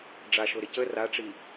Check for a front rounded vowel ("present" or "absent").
absent